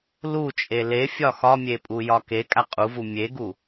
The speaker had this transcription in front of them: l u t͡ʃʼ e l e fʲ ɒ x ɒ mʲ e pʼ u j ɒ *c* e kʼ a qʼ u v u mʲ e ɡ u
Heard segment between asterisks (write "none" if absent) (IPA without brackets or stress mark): k